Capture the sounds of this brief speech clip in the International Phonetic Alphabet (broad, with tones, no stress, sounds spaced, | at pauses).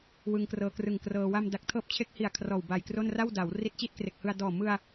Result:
w ɯ˧ ŋ k r ɤː˧ k r ɯ˨˩ ŋ k r ɤː˧ w a˧ m d a˨˩ k̚ tʰ ɤː˦˥ p̚ t͡ɕʰ e˦˥ k̚ h i˨˩ a̯ kʰ r ɔː˨˩ w b a˨˩ j k r o˥˩ n r a˥˩ w d a˩˦ w r i˦˥ t̚ t͡ɕ i˥˩ t̚ k r e˨˩ k̚ h ɯ˧ a̯ d ɔː˨˩ m ɯ˧ a̯